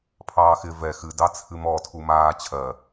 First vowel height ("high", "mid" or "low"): low